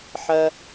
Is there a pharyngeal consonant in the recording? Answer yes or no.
yes